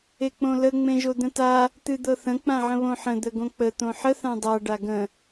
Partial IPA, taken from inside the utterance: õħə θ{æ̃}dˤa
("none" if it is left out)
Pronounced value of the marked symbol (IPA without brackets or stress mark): ã